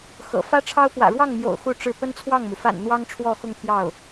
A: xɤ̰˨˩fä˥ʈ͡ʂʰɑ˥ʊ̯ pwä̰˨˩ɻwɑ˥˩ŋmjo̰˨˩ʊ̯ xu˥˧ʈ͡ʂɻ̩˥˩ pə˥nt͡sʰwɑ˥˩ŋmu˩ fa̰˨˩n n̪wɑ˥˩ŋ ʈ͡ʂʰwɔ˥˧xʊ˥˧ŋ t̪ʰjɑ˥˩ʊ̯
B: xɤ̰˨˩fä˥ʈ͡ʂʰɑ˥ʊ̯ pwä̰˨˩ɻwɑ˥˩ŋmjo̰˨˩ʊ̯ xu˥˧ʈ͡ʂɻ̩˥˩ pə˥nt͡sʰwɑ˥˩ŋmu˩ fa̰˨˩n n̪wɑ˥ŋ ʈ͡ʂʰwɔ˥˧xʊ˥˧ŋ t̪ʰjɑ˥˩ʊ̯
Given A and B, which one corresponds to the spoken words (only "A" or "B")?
B